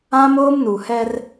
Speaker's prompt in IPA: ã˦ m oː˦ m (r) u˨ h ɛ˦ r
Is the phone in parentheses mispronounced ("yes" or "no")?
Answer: yes